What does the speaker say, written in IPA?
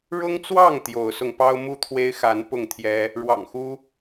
ɻ ʊ˦ ŋ t͡s w ɑ˥˨ ŋ t̪ j o˨˦ ʊ̯ s ʊ˧ ŋ p ɑ˦ ʊ̯ m u˥˨ t̪ʰ w e˦ ɪ̯ x a˨˦ n p ʊ˥˨ ŋ t̪ʰ j ɛ˦ | ɻ w ɑ̰˨˩ ŋ x u˦

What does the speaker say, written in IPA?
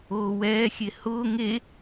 oː w ɛː xʲ e h ʊː ŋ e

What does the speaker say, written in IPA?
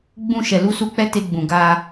ɡ͡b ũ˧ ʃ ɛ˨ l u˧ s u˦ k͡p ɛ˦ t e˧ ɡ͡b ũ˨ ɡ a˧

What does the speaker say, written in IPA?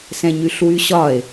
s ɛ̃ ɲ y ɬ w y ɕ ɒ e̯

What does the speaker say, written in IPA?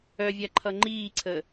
œ vʲ a ǃʰ ʌ ŋ͡ǃ iː ǀʰ ə

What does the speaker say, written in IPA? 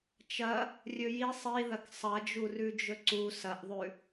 t͡ʃ ɐ | rʲ ɵ j i sˤ i ð ɐ k sˤ ɐ d͡ʒ u r ʉ d͡ʒ ɵ ǀ u s ɐ ʔ ðˤ ʉ

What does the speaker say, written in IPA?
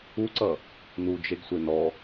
u ǀ ʌ | n u d͡ʒ e ɡ sʷ e n ɔ

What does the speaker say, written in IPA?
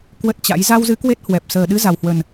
k w ə˦˥ t̚ t͡ɕ a̰˧˥ j z a˧ w z ɨ˨˦ k w e˦˥ t̚ h w ɛ˨˩ p̚ s əː˨˩ ɗ ɨ˨˦ z a˨˩ w h w ə˨˩ n

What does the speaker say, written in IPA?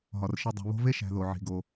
ɦ ɒ˩ r ʃ i˨ dˤ o̤˨ β o̤˦ v e˥ ʃ æ̤˨ ð o˩ ʕ i̤˩ ɡ o˩

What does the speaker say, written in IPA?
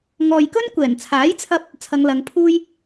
ŋ ɔː˨ j k ɵ˥ n kʷ ɛː˨˩ n t͡sʰ aː˨˥ j t͡sʰ ɐ˥ p̚ | t͡sʰ ɐ˨˧ ŋ l ɐ˨˧ ŋ pʰ uː˥ j

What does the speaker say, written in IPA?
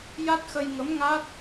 j a˦˥ t̚ x ə˧ j ŋ ə˧˥ m ŋ a˦˥ t̚

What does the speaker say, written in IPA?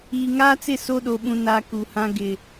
iː˨ ŋ aː˦ t͡s ɪ˦˨ s o˦ ɗ o˨ ɓ ũ˨ n a˨ k u˨ h ã˦ ɡ ɪ˨

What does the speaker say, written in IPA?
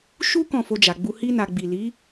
ʃ u˦ k ɔ̃˦˨ f o˧ d͡ʒ a˨ ɡ͡b u˧ h i˧ n a˨ ɡ͡b i˨ l i˨˦

